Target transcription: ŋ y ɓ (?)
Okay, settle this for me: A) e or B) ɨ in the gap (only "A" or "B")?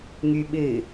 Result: B